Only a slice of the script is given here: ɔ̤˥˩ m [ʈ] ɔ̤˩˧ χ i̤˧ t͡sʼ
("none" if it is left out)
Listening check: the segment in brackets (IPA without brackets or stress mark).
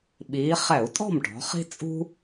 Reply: ʈ